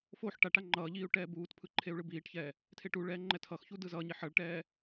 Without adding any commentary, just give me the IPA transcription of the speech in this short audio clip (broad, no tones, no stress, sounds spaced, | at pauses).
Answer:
f o ħ ʈ a ʈ a ŋ͡ǃ ʌː ʎ iː u̯ ʈ ɛː b uː t pʰ ɯ ǃʰ e u̯ ɭ ɯ b iː ʈ ç ɛː | tʰ e ʈ u ɭ ɛː ŋ͡ǃ ɛ tʰ ʌ x ç u d ɯ z ʌː ɲ i ħ ʌ ɭ ʈ ɛː